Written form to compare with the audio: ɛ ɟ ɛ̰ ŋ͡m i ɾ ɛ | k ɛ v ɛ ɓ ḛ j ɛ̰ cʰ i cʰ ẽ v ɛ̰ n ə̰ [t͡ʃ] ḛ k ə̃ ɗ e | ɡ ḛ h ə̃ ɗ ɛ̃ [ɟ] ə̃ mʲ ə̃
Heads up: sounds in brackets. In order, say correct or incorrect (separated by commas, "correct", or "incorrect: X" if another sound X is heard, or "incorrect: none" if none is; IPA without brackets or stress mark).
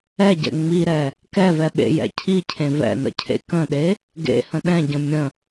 incorrect: cʰ, correct